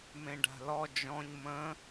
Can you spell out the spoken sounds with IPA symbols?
m ẽ ɖ a̤ l ɔ d͡ʒ ɔ̃ ɲ m ə̃

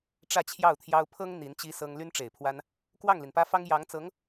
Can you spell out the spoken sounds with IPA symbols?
ʈ͡ʂ ä˥˧ t͡ɕʰ j ɑ˥˩ ʊ̯ t̪ʰ j ɑ˥ ʊ̯ pʰ ɤ˥ ŋ n̪ i˧˥ n t͡ɕ i˥ s ɤ˥ ŋ l y˥ n ʈ͡ʂ e˨˩ ɪ̯ pʰ w a˥ n | k w ɑ˥˩ ŋ l i˩ n p ä˥ f ɑ˥ ŋ j ɑ˧˥ ŋ t͡s ɤ˧˥ ŋ

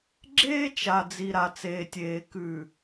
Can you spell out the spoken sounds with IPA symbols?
ɡ͡ǁ eː˦ t͡ʃ a˨ d͡z i˨ ɾ a˨ t͡s eː˨ tʲ eː˨ k ʉ˨

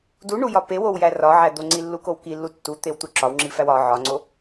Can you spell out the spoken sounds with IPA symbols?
d u ɳ u j ɒ p e w o w j æ r ɒ ʕ æ d̪ o ŋ͡ǀ i lː u k o w k i lː u tː u t̪ e w t̪ u ǁ ɒ w ŋ͡ǁ i f æ w ɒ ʕ ɒ ŋ͡ǀ o

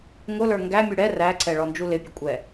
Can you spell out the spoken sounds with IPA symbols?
ŋ ʊ l ə˞ ŋ ɡ æ mʲ u ɽ ɛ r æ ǀ ɛ ɭ ɔ n d͡ʒ u l ɪ pʲ ə kʷʼ ɛ

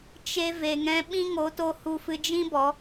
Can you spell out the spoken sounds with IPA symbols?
t͡ʃ e˧ v e˨ ŋ ɛ̃˧ ɓ ĩ˦ ŋ o˨˦ t o˧ h u˧ f ɨ˧ d͡ʒ ĩ˦ b ɔ˨˦

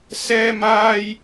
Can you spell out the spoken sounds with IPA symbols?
s ɛː˥ m aː˥ j

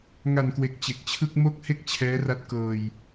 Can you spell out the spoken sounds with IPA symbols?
ŋ a˨˩ n k w e˨˩ k̚ t͡ɕ e˨˩ k̚ t͡ɕʰ ɯ˥˩ k̚ m o˥˩ k̚ h e˥˩ k̚ t͡ɕʰ ɛː˦˥ r a˦˥ t̚ k ɤː˧ j

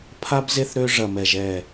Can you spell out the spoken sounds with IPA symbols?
pʰ a˥ b z e˥ θ ɾ ø˥ ʐ ɐ˧˩ m ɛ˧˩ ʒ ɛ˧˩

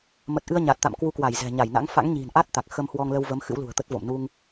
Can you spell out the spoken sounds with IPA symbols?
m ə˨˩ t̚ ʔ ɨ˧ ə̯ ɲ a˨˩ t̚ t̪ a̰˧˨ m k w u˧ k w a˧˩ j z ɛ̤˨˩ ɲ a˧˩ j n a̰˧˥ ŋ f a̰˧˥ ŋ ɲ i̤˨˩ n ʔ a˦˥ t̚ t̪ a˨˩ k̚ x ə˧ m h w ɔ˧ ŋ l ə˧ w v ə˨˦ m x ɨ̰˧˥ w l ṳ˨˩ ə̯ t̪ ə˦˥ t̚ v o̰˧˨ m n u˧ ŋ

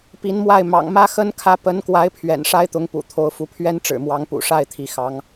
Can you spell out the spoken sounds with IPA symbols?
p i˧˥ n m w a˥˩ ɪ̯ m ɑ̰˨˩ ŋ m ä˥ x ə˥ n kʰ ä˧˥ p ə˧˥ n k w a˧˥ ɪ̯ pʰ ɥ ɛ̰˨˩ n ʂ a˥ ɪ̯ t̪ ʊ˧˥ ŋ p ṵ˨˩ t̪ʰ o˧˥ ʊ̯ f u˧˥ pʰ ɥ ɛ˥ n ʈ͡ʂ ɻ̩˨˩ m w ɑ˧˥ ŋ p ṵ˨˩ ʂ a˥˩ ɪ̯ t̪ʰ i˧˥ x ɑ˧˥ ŋ

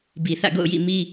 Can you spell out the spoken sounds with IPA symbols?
b i˨ θ ä̰˦˨ ɡ o̰˦˨ ʊ̯ j ḭ˦˨ m i˦

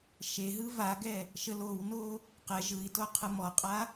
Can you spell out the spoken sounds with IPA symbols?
ʃ e ɦ ɯ v a ɡ ɛ | ʃ ə l o w n o | q ɛ ʒ ɯ i̯ t o qʰ ɯ m ɔ qʼ a

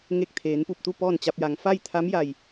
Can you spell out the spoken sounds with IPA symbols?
ŋ e˧˩ k̚ t̪ʰ eː˩˧ n p u˧˩ p̚ t̪ u˥˨ p ɔː˥˨ n t͡ɕ a˧ p̚ j a˩ ŋ f a˥˨ j t̪ʰ a˧˥ m j a˧˩ j

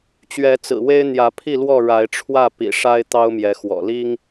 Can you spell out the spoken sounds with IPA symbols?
t͡ɕ ɥ ɛ˨˦ t͡s ɹ̩˨˩ w e˦ ɪ̯ n̪ j ä˨˦ pʰ i˥˨ l w ɔ˥˨ ɻ a˨˦ ɪ̯ ʈ͡ʂʰ w ä˥˨ p ḭ˨˩ ʂ a˦ ɪ̯ t̪ ɑ˦ ʊ̯ m j ɛ˨˦ x w ɔ̰˨˩ l i˦ ŋ

